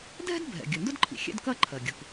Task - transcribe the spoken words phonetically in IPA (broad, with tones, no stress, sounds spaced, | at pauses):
dʱ ɛ̤˥ d bʱ ɛ̰˩ ɡʲ ɵ˩ n d ʊ˥ d ǃʰ ḭ˩ xʲ ɛ̰˥ d k ɐ˥ ǃʰ ɜ˩ ɡʲ ʊ˩ k